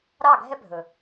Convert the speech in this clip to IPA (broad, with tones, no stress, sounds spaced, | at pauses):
ɾ ɑ˦˨ ɡʱ ɛ˦ bʱ ɵ˨